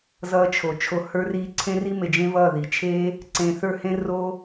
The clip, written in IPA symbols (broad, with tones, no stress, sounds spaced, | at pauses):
z ʌː˧ t͡ʃʰ o˨ t͡ʃʰ o˨ h ə˞˧ r iː˧ ǀʰ ẽ˧ r i˧ m e˨ d͡ʒ ẽ˦ v ʌː˦˨ ð i˨ t͡ʃʰ e˦ | ǀ ẽ˨ θ ə˞˧ h ẽ˧ r o˦